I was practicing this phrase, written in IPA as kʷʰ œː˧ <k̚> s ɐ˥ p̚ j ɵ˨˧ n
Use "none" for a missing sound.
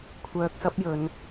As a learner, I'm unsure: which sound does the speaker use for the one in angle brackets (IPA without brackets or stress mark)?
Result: k̚